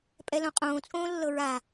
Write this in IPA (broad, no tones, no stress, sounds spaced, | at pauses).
pʼ ɛ l õ qʼ õː t͡sʼ õː lː ɤ ɹ a